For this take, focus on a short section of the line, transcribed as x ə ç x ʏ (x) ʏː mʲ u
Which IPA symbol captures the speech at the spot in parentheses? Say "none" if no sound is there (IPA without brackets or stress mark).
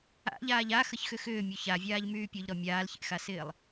x